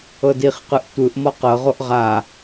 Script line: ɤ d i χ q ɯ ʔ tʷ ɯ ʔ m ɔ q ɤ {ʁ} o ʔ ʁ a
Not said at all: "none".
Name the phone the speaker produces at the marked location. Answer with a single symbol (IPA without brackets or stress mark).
ʁ